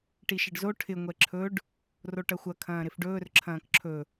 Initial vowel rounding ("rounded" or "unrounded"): unrounded